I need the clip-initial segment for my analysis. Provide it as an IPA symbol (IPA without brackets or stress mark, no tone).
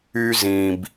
y